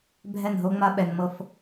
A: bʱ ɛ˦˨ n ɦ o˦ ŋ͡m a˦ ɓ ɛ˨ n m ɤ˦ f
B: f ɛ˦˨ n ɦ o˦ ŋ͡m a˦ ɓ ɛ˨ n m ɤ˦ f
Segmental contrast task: A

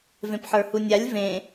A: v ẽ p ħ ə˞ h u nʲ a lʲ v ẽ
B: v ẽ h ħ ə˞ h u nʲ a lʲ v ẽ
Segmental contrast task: A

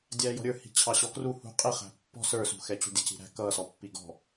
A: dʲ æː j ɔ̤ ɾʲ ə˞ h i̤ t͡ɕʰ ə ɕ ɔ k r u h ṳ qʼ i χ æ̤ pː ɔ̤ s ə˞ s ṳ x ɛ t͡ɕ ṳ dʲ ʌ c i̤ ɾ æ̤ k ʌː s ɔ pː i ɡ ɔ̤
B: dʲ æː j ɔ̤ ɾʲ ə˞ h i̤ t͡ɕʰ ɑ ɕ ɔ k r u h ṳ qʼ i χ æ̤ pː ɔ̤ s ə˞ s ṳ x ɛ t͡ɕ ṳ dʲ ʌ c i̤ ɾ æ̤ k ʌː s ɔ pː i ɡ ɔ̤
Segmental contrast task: B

